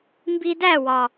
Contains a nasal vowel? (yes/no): no